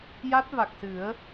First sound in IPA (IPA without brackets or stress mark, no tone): j